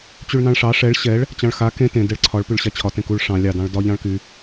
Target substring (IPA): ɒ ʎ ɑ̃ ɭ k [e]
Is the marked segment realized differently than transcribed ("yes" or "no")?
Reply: yes